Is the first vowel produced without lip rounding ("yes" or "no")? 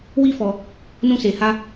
yes